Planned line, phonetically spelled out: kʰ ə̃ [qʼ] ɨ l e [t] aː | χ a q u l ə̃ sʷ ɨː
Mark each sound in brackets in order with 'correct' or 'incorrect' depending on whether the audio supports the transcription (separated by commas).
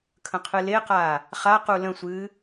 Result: incorrect, incorrect